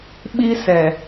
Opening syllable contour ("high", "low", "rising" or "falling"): high